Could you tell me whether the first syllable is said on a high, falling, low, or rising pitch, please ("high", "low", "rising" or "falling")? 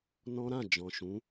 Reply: high